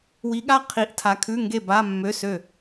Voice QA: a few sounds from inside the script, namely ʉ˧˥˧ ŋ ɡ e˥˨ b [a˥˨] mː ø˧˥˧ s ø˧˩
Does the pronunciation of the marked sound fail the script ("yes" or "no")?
yes